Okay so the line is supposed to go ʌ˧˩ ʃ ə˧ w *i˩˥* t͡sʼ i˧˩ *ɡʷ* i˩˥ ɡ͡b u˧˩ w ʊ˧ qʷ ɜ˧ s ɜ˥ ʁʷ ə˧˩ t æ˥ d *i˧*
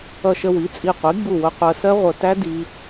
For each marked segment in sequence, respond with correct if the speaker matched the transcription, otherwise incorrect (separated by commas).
correct, incorrect, correct